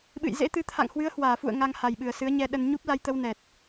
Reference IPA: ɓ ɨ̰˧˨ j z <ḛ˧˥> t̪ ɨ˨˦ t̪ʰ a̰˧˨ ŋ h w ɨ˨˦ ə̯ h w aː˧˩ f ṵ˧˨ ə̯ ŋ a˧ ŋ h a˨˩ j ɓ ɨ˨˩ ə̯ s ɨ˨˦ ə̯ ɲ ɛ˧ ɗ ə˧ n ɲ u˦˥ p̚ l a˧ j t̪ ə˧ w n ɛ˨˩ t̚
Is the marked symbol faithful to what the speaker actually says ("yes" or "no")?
yes